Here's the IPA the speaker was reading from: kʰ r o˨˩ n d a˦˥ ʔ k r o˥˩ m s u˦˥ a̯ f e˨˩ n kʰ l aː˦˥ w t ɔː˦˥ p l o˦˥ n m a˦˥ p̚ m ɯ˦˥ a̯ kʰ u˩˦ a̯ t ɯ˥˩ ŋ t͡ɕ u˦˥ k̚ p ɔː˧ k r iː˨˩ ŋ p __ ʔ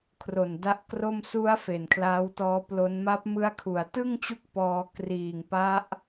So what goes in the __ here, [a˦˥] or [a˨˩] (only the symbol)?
a˦˥